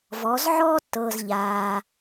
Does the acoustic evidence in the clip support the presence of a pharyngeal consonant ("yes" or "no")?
yes